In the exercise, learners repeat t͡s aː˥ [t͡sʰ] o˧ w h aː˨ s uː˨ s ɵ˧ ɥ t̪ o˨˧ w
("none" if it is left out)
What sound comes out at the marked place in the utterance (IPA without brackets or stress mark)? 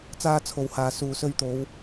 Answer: t͡sʰ